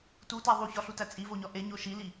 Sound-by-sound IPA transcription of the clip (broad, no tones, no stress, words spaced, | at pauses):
tutæ ðˤuçɒɬutæ t͡sʼivoɲɒ ʔeɲo ʃili